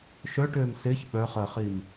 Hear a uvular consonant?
yes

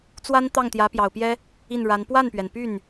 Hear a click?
no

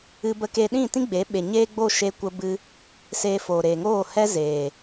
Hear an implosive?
yes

